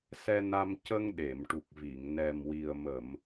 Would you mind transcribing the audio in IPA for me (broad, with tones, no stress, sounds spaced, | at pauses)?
s ɛ˧ n a˧ m c ə˧ ŋ ɗ e˨˩˨ m ʈ u˨˩ k̚ v i˨˩˨ ŋ n ɛ˨˩ m w i˨˩ ə̯ m ə˨˩˨ m